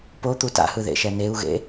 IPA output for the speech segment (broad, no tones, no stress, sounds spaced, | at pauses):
p o t̪ u t a̰ h ɯ ð ḛ ʃ ɛ n e u̯ ɣ ḛ